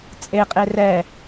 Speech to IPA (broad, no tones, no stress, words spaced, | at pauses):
t͡sʼeqʼe rɛ